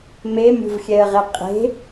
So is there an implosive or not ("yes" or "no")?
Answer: no